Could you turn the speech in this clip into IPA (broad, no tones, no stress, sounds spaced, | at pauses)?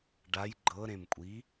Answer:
ɖ a j ɡ͡ǃ ɤ ɾ ẽ m kʷʼ i